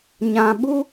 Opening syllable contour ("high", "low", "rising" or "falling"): low